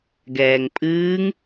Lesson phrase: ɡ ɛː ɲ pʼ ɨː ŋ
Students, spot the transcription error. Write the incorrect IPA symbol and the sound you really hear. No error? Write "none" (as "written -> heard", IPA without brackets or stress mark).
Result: ɲ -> ŋ